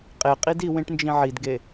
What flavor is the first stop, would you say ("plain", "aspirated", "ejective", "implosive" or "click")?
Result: ejective